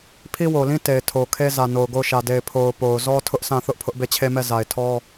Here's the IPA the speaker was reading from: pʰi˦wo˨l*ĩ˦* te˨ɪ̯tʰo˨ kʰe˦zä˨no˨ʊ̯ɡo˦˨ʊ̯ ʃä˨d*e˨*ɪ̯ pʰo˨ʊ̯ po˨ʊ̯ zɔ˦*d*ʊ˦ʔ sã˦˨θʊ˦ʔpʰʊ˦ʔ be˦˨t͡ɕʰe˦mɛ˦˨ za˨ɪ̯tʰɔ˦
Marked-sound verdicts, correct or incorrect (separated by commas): correct, correct, incorrect